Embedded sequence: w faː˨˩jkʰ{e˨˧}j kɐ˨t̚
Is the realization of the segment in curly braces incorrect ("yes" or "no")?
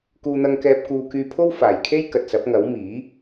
yes